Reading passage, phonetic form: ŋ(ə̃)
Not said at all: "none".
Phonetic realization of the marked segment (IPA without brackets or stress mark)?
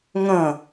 ə̃